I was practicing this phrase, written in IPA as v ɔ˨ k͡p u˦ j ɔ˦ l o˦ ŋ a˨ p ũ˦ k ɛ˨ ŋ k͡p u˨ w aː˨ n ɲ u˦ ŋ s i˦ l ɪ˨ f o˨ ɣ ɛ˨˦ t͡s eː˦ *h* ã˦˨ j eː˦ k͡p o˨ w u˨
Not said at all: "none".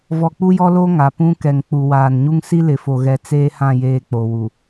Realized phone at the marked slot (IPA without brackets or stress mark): h